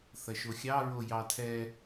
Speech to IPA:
θɐʃoxʲɑɹo jɑtʰɛ

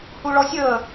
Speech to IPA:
huɭɔsʲəː

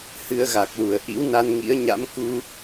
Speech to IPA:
hɨ˧ə̯ɣa˨˩k̚lu˧˩ə̯ ʔḭ˧˥wna˧nŋḭ˧˥ə̯ɲa̰˧˥m ku˧

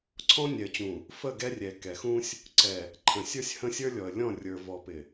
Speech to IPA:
ǀʰɔ̃˦nʲɛ˨ə̯t͡ɕũ˨ | fə˦˨ɡɛ˦rʲɛ˨ kɛ˨xũ˦sʲ | ǀɛ˨ | ǃʰə̃˨sʲə˞˦sʲhə̃˦sʲə˞˦ lʲɔ˨ə̯lʲɔ̃˦˨ rʲə˞˨ vɔ˨pɪ˨

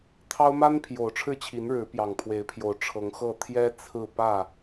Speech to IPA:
t̪ʰɑ˦ʊ̯ ma˦n pʰjo˨˩ʊ̯ʈ͡ʂʰɻ̩˥˨t͡ɕʰi˨˦n ɻɻ̩˨˦pjɑ˨˩ŋpʰwe˨˦ɪ̯pʰjo˨˦ʊ̯ ʈ͡ʂʰɤ˨˦ŋxɤ˥˨ t̪ʰjɛ˦ t͡sʰɹ̩˥˨ pä˥˨

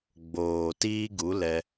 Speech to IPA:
ɡ͡boː˨ tiː˦ɡu˨˦lɛ˧

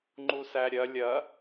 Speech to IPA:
ŋ͡ǃusæɾʲɐ lʲɐ

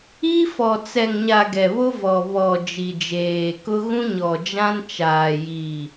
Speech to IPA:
i˦fɔ˨ t͡sɛ˨ŋɲa˨ ɡɛ˨βo˦ vɔ˨ βɔ˨ d͡ʒi˨d͡ʒeː˨kʊ˦ ɣũ˦ɲɔ˨d͡ʒã˦nt͡ʃaː˨ ji˨

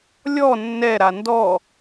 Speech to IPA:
lʲɔ nːɛɾa ndɔ

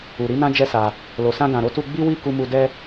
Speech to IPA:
u˨ɾi˧nã˧ d͡ʒɛ˦sa˧ | lo˨sã˧ɡã˨ɾo˧ tu˧ɡ͡bi˦wi˦˨ ku˧mu˧ dɛ˦

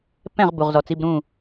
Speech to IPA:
pɛ̃˧˩ʁ bu˩ʁzɔ˩t͡si˩˧˩bɾũ˧˩

